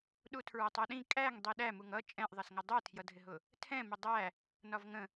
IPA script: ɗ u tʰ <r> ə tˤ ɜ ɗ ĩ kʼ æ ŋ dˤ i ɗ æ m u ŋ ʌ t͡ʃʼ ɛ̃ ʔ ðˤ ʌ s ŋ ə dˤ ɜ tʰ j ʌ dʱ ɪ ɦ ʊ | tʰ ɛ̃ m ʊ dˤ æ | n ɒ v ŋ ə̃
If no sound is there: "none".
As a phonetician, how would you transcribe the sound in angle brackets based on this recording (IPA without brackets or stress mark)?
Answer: ɹ